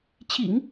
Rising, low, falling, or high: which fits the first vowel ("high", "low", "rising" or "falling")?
low